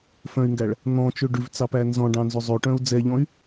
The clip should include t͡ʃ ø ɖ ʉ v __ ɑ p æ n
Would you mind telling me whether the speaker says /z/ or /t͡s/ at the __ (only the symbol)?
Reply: t͡s